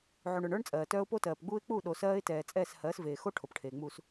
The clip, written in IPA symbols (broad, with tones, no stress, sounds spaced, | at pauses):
ʕ u˨ ɳ ə˞˨ ɳ ə˞˦ ɳ t͡sʼ ɜː˨ t œː˦ ʊ̯ p o˦ t ɜː˨ p ɡ͡b uː˦ ɪ̯ k͡p u˦˨ ɗ o˨ s ɜː˦ ɪ̯ t ɛː˨ t͡sʼ ɛː˦˨ s h ɜː˨˦ s v eː˨ x o˦ ʈʰ o˨ p ʈʰ eː˨ ŋ͡m uː˨ s